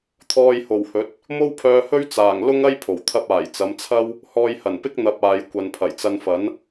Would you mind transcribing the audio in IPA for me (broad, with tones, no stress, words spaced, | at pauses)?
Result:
t̪ʰɔː˧jho˨˩whɵ˨˥t̚ | mo˥wpʰœː˧hɵ˥ɥ t͡saː˨˩ŋ lʊ˥ŋɐ˥j pʰo˨˩wt̪ʰɐ˥p̚ aː˨˩j t͡sɐ˨˧mt͡sʰɐ˥w | hɔː˧jhɐ˨˩npɪ˥k̚ n̪ɐ˧p̚aː˨j kʷɐ˨npʰɐ˨˩jt͡sɐ˧nfɐ˨˥n